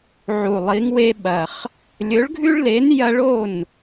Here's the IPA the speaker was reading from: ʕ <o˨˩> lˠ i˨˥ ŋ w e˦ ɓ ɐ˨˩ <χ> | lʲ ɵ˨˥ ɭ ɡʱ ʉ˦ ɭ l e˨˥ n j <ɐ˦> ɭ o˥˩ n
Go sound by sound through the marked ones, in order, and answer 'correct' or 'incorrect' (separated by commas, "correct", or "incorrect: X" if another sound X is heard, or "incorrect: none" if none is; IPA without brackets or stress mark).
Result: incorrect: u˨˩, correct, correct